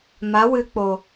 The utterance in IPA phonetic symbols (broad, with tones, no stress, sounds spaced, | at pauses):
m a˨˦ w ɨ˧ k͡p o˨